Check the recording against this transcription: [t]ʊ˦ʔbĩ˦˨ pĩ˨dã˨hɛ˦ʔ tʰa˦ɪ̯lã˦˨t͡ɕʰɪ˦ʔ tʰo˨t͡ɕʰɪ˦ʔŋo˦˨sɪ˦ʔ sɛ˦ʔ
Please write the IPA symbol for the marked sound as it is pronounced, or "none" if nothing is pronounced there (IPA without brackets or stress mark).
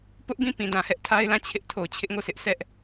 p